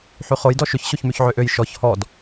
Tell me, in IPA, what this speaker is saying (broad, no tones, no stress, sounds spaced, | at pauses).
ħ y χ o j d ɔ ʃ ʏ ç ɕ o ç m y ç ʕ ø ʔ ø j ʃ ɔ ç h ɔ d